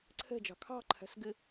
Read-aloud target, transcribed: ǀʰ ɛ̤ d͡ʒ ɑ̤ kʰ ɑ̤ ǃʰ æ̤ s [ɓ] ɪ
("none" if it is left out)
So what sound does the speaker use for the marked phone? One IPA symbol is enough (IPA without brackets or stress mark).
ɡ